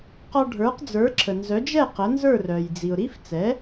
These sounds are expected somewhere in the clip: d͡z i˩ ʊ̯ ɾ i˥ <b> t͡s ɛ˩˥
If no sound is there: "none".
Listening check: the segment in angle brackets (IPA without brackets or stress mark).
f